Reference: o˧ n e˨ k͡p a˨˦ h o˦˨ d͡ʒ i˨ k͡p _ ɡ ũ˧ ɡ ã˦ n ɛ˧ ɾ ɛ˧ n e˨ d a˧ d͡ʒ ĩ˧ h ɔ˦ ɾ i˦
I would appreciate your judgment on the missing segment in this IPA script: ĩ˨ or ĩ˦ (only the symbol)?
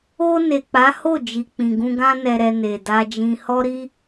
ĩ˨